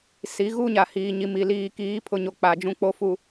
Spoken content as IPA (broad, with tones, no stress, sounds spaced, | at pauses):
s i˨˦ ɣ u˦ ɲ a˨ h iː˨ ɲ i˨ m i˨ l iː˨ k iː˨˦ pʰ ʊ˨ ɲ o˨ k͡p a˨ d͡ʒ ũ˦ k͡p o˦ f u˨